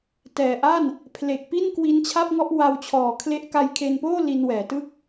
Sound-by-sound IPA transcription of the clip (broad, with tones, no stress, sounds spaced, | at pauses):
t ɛː˨˩ ʔ a˥˩ n | pʰ l e˨˩ k̚ p i˥˩ n k w i˦˥ n t͡ɕʰ a˥˩ p̚ ŋ ɔ˥˩ ʔ w a˧ w t͡ɕʰ ɔː˨˩ kʰ l e˦˥ ʔ k a˧ j kʰ e˧ n p oː˥˩ l i˧ n w ɛː˩˦ t ɯ˥˩ k̚